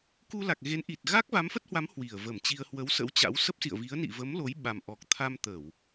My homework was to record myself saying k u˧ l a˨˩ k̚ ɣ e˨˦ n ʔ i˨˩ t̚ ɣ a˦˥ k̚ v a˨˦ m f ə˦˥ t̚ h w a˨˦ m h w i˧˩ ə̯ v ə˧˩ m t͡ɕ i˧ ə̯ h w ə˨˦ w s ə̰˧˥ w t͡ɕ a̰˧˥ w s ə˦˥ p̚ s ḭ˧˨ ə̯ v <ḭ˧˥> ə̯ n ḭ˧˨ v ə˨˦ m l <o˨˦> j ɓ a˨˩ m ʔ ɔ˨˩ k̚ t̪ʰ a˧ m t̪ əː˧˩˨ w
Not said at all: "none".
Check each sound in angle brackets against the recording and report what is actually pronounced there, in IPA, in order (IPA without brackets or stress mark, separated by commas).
i˨˦, o˨˦